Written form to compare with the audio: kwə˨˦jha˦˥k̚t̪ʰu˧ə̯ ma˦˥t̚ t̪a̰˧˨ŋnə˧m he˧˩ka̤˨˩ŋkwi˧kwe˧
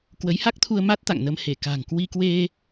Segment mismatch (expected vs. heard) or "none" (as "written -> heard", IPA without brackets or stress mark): none